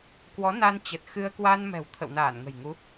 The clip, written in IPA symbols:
k w ɔ˨˦ n a˧ n t͡ɕ ə˨˩ t̚ x ɨ˧ ə̯ k w a˧ n m ɛ̤˨˩ w t̪ʰ ə̰˧˨ w n aː˧˩ n ŋ ə̤˨˩ j ŋ u˨˦

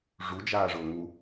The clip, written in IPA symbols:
ʐ u d͡ʒ aː ʐ ʊː ŋ u

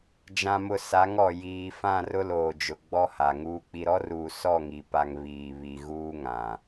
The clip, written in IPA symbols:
d͡ʒ ã˨ m ʊ˨ s a˨˦ ŋ ɔ˨ j iː˨ f ã˦˨ r ʊ˦ l oː˨ d͡ʒ ʊ˨ ɡ͡b ɔ˦ h a˨ ŋ uː˨ k͡p i˨ ɾ ɔ˦ r uː˨ s ɔ˦˨ ŋ i˨ p a˨ ŋ β iː˨ β i˨ ɣ uː˦ ŋ ã˨

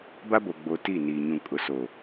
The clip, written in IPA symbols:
b a˦ b o˨ ɡ͡b o˨ t i˦˨ n iː˨ ɲ ũ˨ kʼ ʊ˨ s o˨

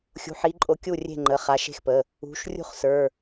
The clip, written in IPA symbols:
xʲ ṳ˩˧˩ ħ i˨˦ ǃʼ o˨˦ kʲ u˥˩ rʲ e̤˥˩ ŋ͡ǃ ə˩˧˩ χ a˨˦ ʃ e̤˥˩ x p ə˩˧˩ | ṳ˩˧˩ ʃ rʲ ṳ˥˩ χ s ə˞˩˧˩

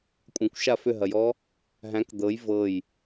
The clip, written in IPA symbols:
kʷʼ ɐ̃ kʷ ʃ a f ʏ ɦ ɐ j ɔ | ɦ æ̃ k d̪ ɤ j v ɤ j

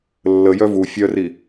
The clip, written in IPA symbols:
lː ə j œ v u fʲ œ r i

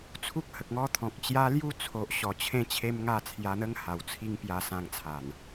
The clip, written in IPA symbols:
t͡sʰ u˦ k̚ h ə˨ k̚ ŋ ɔ˦ t̪ʰ ɔ̃˨ k̚ t͡ɕ j a˧ l j u˧ t͡sʰ o˨ ʔ ɕ ɔ˨˩ t͡ɕʰ ẽ˥˧ t͡ɕʰ e˦ m ŋ a˥˧ t͡sʰ j a˧ n̪ ə˦ ŋ h a˨˩ w t͡sʰ i˦ ŋ p j a˧ s ã˧ ŋ t͡sʰ a˨˩ n

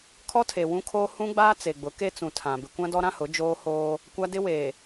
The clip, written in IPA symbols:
kʰ ɔ˦ tʰ e˨ w ũ˦ kʰ oː˦ h ũ˦ ɡ͡b aː˦ t͡s e˨ ɡ͡b ʊ˨˦ k e˦ t͡s ũ˨ tʰ ã˨ b ɪ˨ kʷ ã˦ d ɔ˦ ɾ ã˦ h ʊ˨˦ d͡ʒ oː˦ h oː˦ | kʷ a˦ d ɪ˦ w eː˨

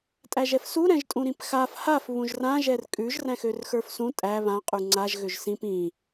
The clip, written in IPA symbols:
tʼ æ ʒ ɛ f s u ɾ ɛ̃ ʒ tʼ ũ ɾ ĩ p x a f h a f β ũ ʒ r ã ʒ ɛ r kʼ ʉ ʒ r æ̃ x ø r x ə˞ f s ũ tʼ æ β ã qʼ ʉ ŋ͡ǀ a ʒ ɣ ø ʒ s ĩ p ĩ

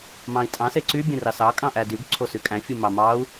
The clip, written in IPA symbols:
m ɑ̃ i̯ tʼ ɑ̃ s e ǀ y bʲ ẽ r ɑ s ɑ kʼ ɑ̃ ʔ æ d y ɡ ǀʰ o s y kʼ æ̃ fʲ ɯ m ɑ m ɑ u̯

